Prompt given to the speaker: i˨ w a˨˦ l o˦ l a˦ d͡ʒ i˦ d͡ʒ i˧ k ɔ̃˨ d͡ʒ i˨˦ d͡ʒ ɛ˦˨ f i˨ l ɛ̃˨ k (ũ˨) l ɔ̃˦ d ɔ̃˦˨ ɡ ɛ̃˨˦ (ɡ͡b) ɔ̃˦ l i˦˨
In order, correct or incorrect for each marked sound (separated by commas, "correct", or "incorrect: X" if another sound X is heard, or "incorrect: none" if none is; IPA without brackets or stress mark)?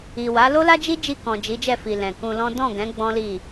incorrect: ũ˧, correct